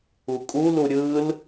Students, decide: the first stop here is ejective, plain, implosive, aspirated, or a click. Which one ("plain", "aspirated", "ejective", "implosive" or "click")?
ejective